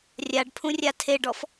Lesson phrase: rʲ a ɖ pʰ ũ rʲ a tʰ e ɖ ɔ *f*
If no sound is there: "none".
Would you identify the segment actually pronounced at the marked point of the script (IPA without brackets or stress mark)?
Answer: f